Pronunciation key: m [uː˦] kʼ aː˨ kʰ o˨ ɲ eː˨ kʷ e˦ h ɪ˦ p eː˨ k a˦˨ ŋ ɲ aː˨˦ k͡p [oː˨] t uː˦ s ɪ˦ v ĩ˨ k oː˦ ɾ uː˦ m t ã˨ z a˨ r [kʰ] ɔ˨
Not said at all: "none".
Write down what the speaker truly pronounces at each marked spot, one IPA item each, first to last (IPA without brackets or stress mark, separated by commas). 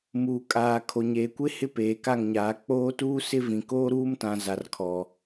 uː˨, oː˦, kʰ